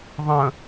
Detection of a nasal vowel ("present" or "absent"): present